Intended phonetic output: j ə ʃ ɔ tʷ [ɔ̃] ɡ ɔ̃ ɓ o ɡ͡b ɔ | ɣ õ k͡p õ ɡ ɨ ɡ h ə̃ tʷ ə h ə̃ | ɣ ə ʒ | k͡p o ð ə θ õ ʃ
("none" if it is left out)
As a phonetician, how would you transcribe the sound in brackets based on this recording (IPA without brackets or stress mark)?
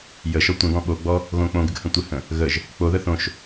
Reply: ə̃